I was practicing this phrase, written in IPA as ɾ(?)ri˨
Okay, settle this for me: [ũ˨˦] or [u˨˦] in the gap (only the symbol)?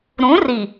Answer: ũ˨˦